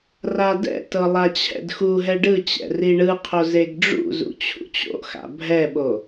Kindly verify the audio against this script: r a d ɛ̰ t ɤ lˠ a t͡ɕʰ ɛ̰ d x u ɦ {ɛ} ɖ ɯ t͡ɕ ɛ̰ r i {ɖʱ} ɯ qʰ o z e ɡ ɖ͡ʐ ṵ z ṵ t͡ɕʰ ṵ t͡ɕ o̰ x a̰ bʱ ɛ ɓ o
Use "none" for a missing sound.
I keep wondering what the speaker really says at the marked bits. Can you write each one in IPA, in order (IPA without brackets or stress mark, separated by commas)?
ɛ, ɳ